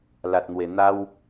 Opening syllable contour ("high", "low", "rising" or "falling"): low